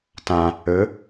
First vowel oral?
no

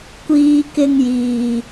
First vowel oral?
yes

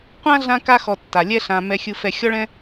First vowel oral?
no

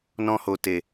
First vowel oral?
no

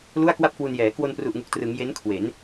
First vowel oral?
yes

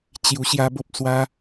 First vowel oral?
yes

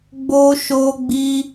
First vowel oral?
yes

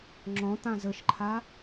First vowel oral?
no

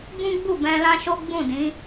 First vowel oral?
no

